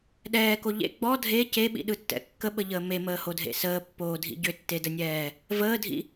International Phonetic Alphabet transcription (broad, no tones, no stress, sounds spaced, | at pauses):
ɗ ɛː k o ʎ ḛ ɡ͡b ɔ dʱ e c e ɓ ḭ ɗ ɯ tː ɛ̰ kː ə ɓ ə ʎ əː m e m əː h o dʱ ḛ s əː pː oː dʱ ḭ ɟ ʏ tː e d ə nʲ ɛː | v əː dʱ ḭ